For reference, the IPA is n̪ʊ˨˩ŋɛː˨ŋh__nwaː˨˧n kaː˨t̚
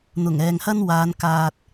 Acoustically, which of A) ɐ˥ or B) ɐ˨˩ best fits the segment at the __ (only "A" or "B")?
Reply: A